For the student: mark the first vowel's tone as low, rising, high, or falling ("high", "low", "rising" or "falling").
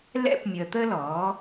high